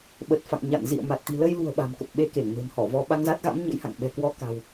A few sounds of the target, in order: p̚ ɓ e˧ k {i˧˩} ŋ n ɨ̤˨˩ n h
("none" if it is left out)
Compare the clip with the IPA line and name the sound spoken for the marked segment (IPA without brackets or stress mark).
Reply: e˧˩